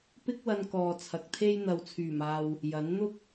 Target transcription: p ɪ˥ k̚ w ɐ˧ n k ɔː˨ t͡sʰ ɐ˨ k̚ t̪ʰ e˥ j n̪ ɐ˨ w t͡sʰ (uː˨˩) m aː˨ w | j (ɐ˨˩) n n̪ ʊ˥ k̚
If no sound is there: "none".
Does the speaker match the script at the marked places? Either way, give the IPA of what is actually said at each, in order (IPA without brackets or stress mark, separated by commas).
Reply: yː˨˩, ɐ˨˥